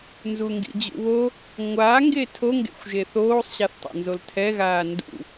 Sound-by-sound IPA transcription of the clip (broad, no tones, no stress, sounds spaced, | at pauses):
n z u ŋ ɡ ḭ d͡ʑ ṵ β o | ŋʷ a ŋ ɡ e tʰ o ŋ ɡ ḛ xʷ ʒ e θ oː sˤ ɕ a θ tˤ o̰ n z o l tʰ ɛ ɣ aː n d ṵ